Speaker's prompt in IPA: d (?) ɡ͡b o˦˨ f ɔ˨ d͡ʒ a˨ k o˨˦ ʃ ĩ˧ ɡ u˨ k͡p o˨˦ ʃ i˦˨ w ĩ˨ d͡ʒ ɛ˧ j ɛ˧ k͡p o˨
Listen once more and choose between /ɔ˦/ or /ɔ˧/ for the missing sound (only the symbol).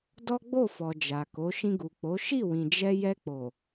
ɔ˦